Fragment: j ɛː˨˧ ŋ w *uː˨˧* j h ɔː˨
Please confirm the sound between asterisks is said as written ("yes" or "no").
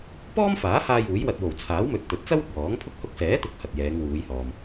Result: yes